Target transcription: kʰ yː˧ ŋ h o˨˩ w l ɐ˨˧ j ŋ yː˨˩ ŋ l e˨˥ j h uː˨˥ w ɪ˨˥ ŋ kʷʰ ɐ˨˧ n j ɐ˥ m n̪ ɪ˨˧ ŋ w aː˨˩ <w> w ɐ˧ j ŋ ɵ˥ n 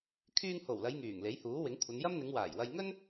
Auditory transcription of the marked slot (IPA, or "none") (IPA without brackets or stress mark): j